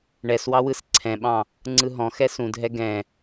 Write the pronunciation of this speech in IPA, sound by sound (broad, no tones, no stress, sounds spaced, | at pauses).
ɳ ɛ s w ɑ w ɯ s ǀʰ ɛ̃ ɓ ɑ̃ | ŋ͡ǀ ɯ ɦ ɔ̃ x ɛ s ũ dʱ ɛ ɡ ɛ̃